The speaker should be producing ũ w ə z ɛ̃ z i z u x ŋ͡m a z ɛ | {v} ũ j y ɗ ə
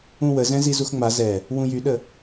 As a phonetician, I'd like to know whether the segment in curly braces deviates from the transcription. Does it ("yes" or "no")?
yes